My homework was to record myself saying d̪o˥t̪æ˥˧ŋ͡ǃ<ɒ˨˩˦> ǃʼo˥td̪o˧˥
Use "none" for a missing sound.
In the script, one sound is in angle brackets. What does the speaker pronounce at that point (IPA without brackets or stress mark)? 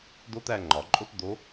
ɒ˨˩˦